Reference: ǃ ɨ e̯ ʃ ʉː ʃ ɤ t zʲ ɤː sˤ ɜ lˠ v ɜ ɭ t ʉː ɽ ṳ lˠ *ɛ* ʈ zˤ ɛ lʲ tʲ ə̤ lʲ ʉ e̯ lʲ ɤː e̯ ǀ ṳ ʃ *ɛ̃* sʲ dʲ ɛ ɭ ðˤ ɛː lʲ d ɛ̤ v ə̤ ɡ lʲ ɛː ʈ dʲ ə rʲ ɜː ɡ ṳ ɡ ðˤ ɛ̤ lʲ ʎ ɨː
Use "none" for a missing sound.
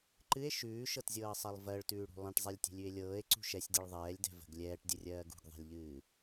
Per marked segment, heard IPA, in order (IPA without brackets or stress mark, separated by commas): ɛ̃, ɛ